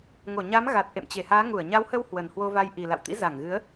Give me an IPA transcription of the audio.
ŋo˧˩ɲa˨˦m ɣa˨˩t̚ ʔḛ˧˨mt͡ɕe˧˩haː˨˦ ŋu˧˩ə̯ɲa˨˦whə˧w hwə˨˩nhwo˧va˧j ʔi˨˩ la̰˧˨wt̪ḭ˧˥za˧˩ŋɣɨ˨˦ə̯

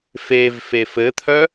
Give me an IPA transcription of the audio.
fevfef ɘt̪ʰœ

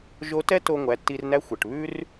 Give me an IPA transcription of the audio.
ʒo˧˥tɛ˥ to˧ ŋʷæ˩˧tːi˧rnæ˧˥xʷ ɛ˩ʈβʉ˥r

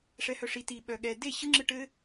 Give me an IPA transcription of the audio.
ʂɛhœʂi ti ɓœɠɛ de ɕɯŋ͡ǁɯ ʈɘ

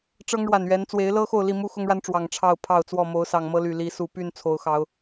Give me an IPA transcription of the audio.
ʈ͡ʂɤ˦ŋɻwa˨˩nɥɛ˨˦n t͡swe˨˦ɪ̯lɤ˦ xo˥˨ʊ̯li˥˨mu˦ xʊ˦ŋɻa˦nʈ͡ʂwɑ˨˩ŋ ʈ͡ʂʰɑ˥˨ʊ̯ pʰɑ˥˨ʊ̯t͡swɔ˥˨ mo˨˦ʊ̯sɑ˨˩ŋmɤ˦ly˨˩ li˨˦su˨˩py˥˨n t͡sʰo˨˦ʊ̯xɑ˨˦ʊ̯

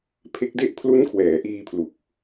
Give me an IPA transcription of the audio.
pʰe˦˥k̚de˥˩ʔ pʰlu˦˥nkʰwɛː˩˦ʔiː˧pʰlu˨˩k̚

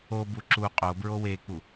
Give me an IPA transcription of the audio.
obu ǁu qʼobɹo wek͡pu

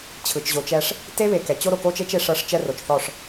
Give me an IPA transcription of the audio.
t͡ɕʰɯ˨t͡ʃʑo˨t͡ʃɛ˦ʂ | te˦βe˨kɛ˨ t͡ɕo˦ɾo˨ko˦t͡ʃe˦t͡ʃ e˦ʂɤ˦ʂ t͡ʃɛ˦ro˨t͡ʃθɔ˦˨ʂ

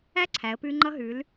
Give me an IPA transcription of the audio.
æ˥˧ǀʰæ˩˧ə̯ pʉ˧ ŋ͡ǃʌ˧ɦʉ˩˧l

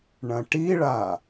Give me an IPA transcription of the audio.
ɳɐ̃ʈiɭa

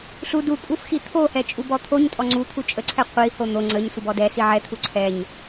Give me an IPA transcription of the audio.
ɬu dukʼuf xit̪ʰohɛ t͡ʃʼubɔt̪ʰoɲtʼɔ ŋ͡ǀut̪ʰu t͡ʃʼəǀʰɛ qʷiho n̪o ŋ͡ǀəɲ sʷəbɔdɛsi ʕɛt̪ʰu ǀʰɛɲ

